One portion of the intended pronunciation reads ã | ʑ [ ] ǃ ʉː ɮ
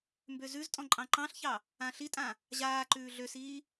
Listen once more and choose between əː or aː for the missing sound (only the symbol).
aː